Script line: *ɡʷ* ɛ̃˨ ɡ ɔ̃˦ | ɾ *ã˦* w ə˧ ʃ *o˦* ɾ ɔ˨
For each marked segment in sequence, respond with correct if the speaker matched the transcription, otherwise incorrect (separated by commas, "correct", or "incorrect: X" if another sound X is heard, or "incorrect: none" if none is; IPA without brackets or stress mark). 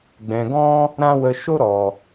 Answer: incorrect: ɡ͡b, correct, correct